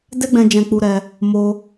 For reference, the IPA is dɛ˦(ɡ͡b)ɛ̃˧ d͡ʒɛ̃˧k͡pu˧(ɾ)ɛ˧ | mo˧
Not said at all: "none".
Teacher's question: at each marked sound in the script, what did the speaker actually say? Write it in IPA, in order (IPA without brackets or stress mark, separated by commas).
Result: ɡ͡b, ɾ